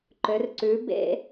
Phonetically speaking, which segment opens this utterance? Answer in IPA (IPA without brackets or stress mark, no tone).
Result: ǃ